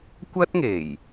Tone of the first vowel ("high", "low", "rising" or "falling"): high